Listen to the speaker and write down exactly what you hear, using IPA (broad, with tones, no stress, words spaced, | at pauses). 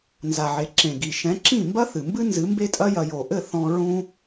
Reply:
nza˨ʕe˨ ǁẽ˨ɡi˨ ʃɛ̃˨˦ǁĩ˦˨mbɐ˦ θɨ˨mbɨ˦nzɨ˨˦ mbe˦tʼɐ˦jɐ˧ jo˨ʔɘ˦˨ θɔ̃˧ ɹũ˦